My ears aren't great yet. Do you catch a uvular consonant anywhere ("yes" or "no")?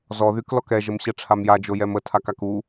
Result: no